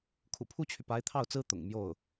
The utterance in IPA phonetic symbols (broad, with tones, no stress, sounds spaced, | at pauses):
kʰ ṵ˨˩ pʰ u˥ t͡ɕʰ y˨ p a˧˥ ɪ̯ t̪ʰ ɑ˥˩ ʊ̯ t͡s ɹ̩˥ t̪ ʊ̰˨˩ ŋ m j o˥˩ ʊ̯